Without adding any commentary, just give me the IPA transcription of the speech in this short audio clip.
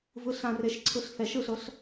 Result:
v ɯ ɬ ã r e ʃ ǀʰ ɯ ɬ θ ɛ ʃ ɯ ɬ ɤ ɬ

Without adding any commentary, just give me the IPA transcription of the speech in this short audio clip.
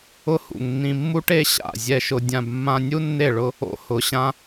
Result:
ʊ˦ h ṵ˨ ŋ nː ĩ˧ mː u˦ ʈ e˦ ɕ a̰˦˨ zʲ ɛ˧ ʃ ʊ˧ dʲ ã˧ b mː ã˧ nʲ u˦ nː e˦˨ ɭ ʊ˦ | o̰˦ h ʊ˨˦ ɕ ã˦

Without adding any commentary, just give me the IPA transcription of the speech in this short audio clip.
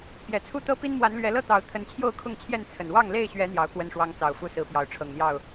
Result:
p j ɛ˨˩ t͡sʰ u˥˨ t̪ ɤ˦ p i˦ n m w a˨˦ n l ɥ ɛ˨˦ l ɤ˥˨ t̪ ɑ˨˦ ʊ̯ t̪ʰ ə˨˦ n t͡ɕʰ j o˥˨ ʊ̯ kʰ ʊ˥˨ ŋ t͡ɕʰ j ɛ˥˨ n t͡sʰ ə˨˩ n w ɑ˥˨ ŋ l e˥˨ ɪ̯ ɕ ɥ ɛ˨˦ n̪ j ɑ˨˦ ʊ̯ k w ə˥˨ n ʂ w ɑ˦ ŋ t͡s ɑ˨˩ ʊ̯ f u˥˨ s ɹ̩˨˦ p j ɑ˨˦ ʊ̯ ʈ͡ʂʰ ɤ˨˩ ŋ n̪ j ɑ˥˨ ʊ̯

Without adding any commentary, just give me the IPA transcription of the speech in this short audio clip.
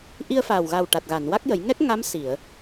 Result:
ʔ i˧ ə̯ f aː˨˩ w ɣ a˨˩ w ʈ a˨˩ t̚ ɣ a˨˩˨ n w a˦˥ k̚ j ə˨˩˦ j ŋ ɛ˦˥ k̚ ŋ a˧˥ m s i˨˩˨ ə̯

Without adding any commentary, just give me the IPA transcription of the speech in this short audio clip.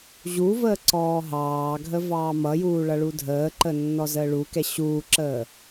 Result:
ʑ u v əː ǀ ɔː ɦ ɑː ɡʱ ə v ɑː m ʌ j uː ɭ ʌ ɭ u dʱ əː ǃ ə nː ɔ z əː ɭ u k ɛ ɕ uː ǁ əː

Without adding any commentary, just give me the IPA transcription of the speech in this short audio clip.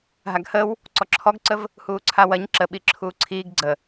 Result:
ɦ a ɡ h ə w | ǀ ɔ ǁʰ ɔ ɡ ǀ ə v | h uː ǀʰ a w ɐ ɲ ǁ ə ɓ i ǁʰ uː ǀʰ iː ɡ ɡ͡ǀ ə

